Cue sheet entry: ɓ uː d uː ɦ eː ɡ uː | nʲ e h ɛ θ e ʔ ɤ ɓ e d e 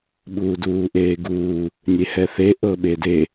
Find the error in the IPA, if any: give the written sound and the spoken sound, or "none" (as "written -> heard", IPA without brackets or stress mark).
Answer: ɦ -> ʔ